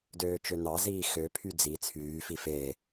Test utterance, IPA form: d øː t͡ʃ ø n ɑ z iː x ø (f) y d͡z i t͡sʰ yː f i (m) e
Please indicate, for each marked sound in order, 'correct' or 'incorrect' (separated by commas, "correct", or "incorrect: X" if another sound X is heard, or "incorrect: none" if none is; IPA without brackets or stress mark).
incorrect: pʰ, incorrect: f